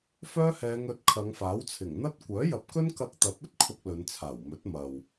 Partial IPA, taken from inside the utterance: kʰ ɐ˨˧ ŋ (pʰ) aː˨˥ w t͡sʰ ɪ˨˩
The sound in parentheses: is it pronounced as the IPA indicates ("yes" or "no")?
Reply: no